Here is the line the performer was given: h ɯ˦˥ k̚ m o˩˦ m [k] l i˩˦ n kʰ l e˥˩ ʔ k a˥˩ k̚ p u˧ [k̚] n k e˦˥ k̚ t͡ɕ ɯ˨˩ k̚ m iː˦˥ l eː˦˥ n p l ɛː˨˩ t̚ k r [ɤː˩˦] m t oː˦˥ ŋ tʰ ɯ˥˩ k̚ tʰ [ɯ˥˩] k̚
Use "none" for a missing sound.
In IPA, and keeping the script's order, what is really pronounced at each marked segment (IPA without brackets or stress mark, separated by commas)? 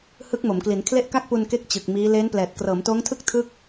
k, none, ɤː˩˦, ɯ˥˩